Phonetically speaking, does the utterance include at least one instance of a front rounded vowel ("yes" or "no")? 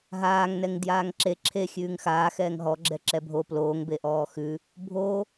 no